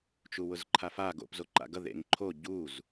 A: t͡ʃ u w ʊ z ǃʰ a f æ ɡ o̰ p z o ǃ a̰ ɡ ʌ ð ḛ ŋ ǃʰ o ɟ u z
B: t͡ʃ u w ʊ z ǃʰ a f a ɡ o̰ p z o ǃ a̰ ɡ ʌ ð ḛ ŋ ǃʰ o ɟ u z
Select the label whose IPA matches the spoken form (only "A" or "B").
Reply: B